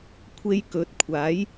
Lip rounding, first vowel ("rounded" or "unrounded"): unrounded